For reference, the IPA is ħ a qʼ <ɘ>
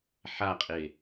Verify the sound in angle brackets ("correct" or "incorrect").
incorrect